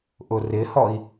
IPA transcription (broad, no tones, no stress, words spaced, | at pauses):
ʔʊrɪhɔi̯